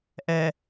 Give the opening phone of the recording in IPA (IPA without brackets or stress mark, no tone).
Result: ʔ